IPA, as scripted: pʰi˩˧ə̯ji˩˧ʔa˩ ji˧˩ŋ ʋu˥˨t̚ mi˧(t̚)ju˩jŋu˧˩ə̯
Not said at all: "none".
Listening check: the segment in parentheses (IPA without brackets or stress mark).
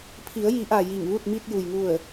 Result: t̚